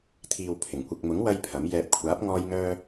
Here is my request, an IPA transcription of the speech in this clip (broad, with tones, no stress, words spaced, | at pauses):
t̪ʰiː˨wpʰɪ˨˩ŋkʷɪ˨k̚mʊ˨˥ŋ wɐ˥jpʰɐ˨˥m jɛː˨p̚kʷʰaː˨˥p̚ ŋɔː˥jŋœː˥